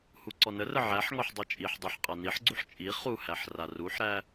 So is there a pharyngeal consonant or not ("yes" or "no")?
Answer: yes